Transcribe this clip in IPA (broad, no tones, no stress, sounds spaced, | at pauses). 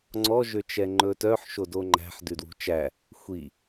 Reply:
ŋ͡ǀ ɔ ʒ ø t͡ʃ ɛ ŋ͡ǃ ɵ t œ ħ ʃ o d o ŋ͡ǃ æ̤ ħ d ʉ d w ṳ t͡ʃ æ | xʷ i